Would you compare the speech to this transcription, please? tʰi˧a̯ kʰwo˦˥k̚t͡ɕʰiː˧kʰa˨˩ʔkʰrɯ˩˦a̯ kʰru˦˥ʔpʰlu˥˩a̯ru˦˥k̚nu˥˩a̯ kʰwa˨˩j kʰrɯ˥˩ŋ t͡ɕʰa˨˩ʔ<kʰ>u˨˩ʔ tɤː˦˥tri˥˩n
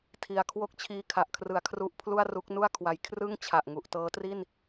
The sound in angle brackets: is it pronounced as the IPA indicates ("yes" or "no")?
no